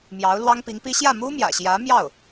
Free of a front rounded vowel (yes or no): yes